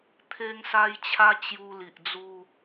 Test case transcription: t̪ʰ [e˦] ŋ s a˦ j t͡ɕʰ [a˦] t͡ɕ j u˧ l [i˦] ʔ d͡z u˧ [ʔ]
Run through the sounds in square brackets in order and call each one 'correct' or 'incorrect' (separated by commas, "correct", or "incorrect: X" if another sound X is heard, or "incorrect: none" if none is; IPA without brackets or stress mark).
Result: correct, correct, incorrect: i˨, incorrect: none